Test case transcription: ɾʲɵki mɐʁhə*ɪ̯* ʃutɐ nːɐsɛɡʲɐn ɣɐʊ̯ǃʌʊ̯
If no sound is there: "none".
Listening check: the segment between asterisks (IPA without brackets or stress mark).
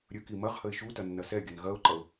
ɪ̯